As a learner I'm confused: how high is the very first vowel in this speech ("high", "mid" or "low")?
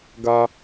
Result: low